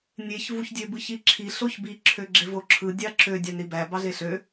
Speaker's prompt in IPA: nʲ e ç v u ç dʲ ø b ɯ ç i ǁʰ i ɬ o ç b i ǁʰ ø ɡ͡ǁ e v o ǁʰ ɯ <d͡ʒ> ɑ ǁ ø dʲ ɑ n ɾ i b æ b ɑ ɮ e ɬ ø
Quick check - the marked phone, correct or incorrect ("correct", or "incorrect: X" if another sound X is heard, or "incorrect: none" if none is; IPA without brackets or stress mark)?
incorrect: dʲ